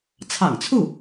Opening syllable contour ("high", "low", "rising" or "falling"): low